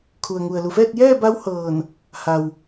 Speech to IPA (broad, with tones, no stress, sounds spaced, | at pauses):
kʰ u˩ ə̯ ŋ u˩ ə̯ l u˩ f ɛː˥˨ t̚ j ɛː˥˨ b a˧˥ w h ɤː˧˩ n | h a˩ w